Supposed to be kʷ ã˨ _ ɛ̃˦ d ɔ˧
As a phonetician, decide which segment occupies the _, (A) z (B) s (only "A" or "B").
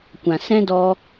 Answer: B